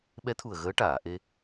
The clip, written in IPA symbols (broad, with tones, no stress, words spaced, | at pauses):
ɓɛ˧˥t̪ʰu˨˩ə̯ ɣəː˧˥ʈaː˨˩˨ ʔe˧